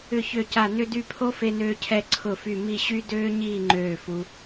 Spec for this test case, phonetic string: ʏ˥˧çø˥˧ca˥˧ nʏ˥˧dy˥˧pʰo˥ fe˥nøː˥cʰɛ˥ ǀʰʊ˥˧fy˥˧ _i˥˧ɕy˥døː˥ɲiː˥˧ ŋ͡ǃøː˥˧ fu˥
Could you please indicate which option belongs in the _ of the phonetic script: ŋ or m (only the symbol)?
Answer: m